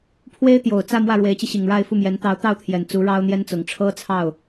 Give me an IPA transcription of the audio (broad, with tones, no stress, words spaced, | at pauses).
pʰwe˥ɪ̯t̪jo˨˩ʊ̯ t͡sä˥˧ mwä˥˩ɻwe˧˥ɪ̯t͡ɕi˧ɕi˨˩ŋ ɻa˥˧ɪ̯ fu˥˩mjɛ˧˥n t̪ɑ˧˥ʊ̯t̪ɑ˥˩ʊ̯t̪ʰjɛ˨˩n t͡su˧˥ ɻɑ˥ʊ̯n̪jɛ˥nt͡sʊ˨˩ŋ ʈ͡ʂʰɤ˥t͡sʰɑ˥˩ʊ̯